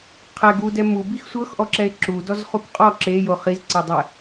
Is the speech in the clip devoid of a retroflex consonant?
yes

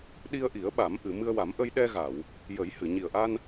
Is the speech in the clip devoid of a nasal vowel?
yes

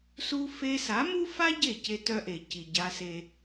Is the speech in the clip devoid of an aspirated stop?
yes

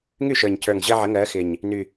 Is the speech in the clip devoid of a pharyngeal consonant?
no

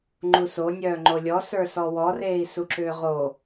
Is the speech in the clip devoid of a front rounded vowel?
no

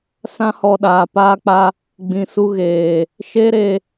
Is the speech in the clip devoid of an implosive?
no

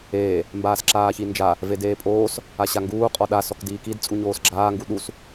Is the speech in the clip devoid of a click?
no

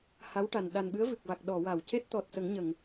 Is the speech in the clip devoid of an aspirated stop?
yes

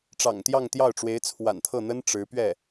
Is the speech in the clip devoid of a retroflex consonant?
no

